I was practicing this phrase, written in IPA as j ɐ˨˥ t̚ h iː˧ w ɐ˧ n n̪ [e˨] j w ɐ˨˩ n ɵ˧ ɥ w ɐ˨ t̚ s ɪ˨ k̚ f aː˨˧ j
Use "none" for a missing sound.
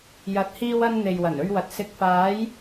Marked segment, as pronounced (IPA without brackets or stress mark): e˨